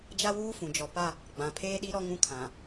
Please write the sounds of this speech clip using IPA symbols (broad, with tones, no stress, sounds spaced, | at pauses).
d͡ʒ a˦ w uː˦ f ũ˨ d͡ʒ ɔ˨ p a˦ | ɡ͡b ã˨ pʰ eː˦ ɗ i˦ ɾ ɔ˦ ŋ ũ˦ kʰ ã˨